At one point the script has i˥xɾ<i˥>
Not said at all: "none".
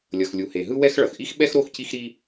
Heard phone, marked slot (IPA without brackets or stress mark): i˥